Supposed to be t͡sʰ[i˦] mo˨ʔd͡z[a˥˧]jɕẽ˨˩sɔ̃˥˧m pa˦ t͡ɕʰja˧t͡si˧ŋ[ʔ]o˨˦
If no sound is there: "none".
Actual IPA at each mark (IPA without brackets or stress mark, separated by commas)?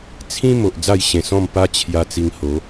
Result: ĩ˦, a˥˧, h